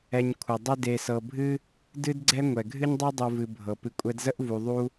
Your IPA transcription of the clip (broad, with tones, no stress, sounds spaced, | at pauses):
ɛ˨ ɲ kʷʰ ʌ˩ dˤ ə˦ d e˨ s ɤ˨ bʱ ɨ˥ | d ɨ˥ d ɡ͡ǀ ɛ˥ ŋʷ ɛ˩ ɡʱ ɨ˦ ɲ dˤ e˦ dˤ u˨ v ɨ˨ bʱ ɤ˩ p ɨ˨ kʷʼ ɛ˦ d z ə˥ ʔ v u˨ ðˤ u˦